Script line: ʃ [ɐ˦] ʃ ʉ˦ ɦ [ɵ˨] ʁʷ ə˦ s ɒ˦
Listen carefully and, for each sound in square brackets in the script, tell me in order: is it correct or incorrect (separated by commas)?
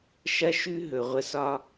correct, correct